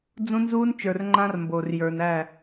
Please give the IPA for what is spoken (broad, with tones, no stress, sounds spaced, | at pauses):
d͡z ũ˦ n z uː˦ n t͡ʃ ə˞˨ r ŋ͡ǃ ã˦ r m b o˨ r j ə˞˨ n æ˦˨